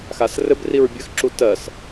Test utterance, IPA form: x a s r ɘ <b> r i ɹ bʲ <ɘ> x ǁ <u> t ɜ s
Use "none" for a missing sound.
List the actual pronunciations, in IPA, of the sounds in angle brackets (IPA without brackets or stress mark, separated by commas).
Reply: b, ɘ, u